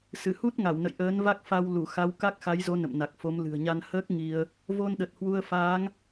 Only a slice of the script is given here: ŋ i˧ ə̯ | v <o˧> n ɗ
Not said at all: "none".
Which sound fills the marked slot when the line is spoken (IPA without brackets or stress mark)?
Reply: o˧